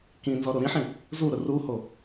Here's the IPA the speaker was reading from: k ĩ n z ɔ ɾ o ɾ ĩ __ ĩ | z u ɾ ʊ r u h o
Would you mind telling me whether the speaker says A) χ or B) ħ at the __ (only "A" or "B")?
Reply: B